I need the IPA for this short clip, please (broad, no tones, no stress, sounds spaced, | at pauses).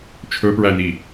t͡ʃʰ ɵ p ɹ æ n i